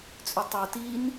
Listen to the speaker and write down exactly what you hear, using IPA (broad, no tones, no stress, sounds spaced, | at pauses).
t͡sʼ ʉ tˤ u t i n